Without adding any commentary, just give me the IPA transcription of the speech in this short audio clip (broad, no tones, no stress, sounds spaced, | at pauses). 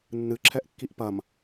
nː ɨ ǁʰ ɛ ʔ kː i ʔ p ɐ m